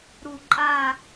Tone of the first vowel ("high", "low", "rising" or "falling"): low